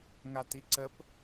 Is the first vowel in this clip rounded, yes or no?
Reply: no